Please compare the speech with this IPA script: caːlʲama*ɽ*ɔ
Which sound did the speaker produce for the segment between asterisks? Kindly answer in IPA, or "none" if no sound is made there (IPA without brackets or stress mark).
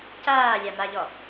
ʎ